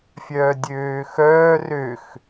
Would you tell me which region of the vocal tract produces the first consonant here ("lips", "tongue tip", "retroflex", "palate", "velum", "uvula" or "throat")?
lips